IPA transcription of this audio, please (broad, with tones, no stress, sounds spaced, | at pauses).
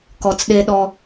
k ɔ˨ t͡s ɗ e˦ ɗ ɔ˦